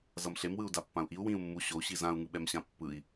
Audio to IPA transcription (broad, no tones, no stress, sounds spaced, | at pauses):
z ʌ m ɬ e m w ɯ u̯ d a pː ã u̯ ʔ i u̯ w ĩ u̯ mː u ɕ o u̯ ɕ i z ã u̯ ŋ ɯ ɓ ɛ m ɕ ã pː ɯ i̯